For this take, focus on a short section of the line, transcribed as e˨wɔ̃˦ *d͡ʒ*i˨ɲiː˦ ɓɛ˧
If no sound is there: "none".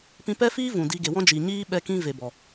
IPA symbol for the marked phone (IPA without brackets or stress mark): d͡ʒ